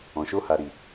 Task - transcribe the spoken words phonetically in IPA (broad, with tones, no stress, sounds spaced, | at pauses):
ɔ̃˨ ʃ o˧ h a˨ ɾ i˨